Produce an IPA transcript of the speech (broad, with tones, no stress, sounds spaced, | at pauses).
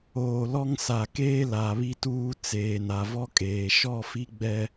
oː˨ l ɔ˦ ŋ s a˨ k eː˦ l a˨ β i˦ t uː˦ t͡s eː˨ n a˨ v ɔ˦ kʼ eː˨ ʃ ɔ˦˨ f i˦ ɡ͡b ɛ˦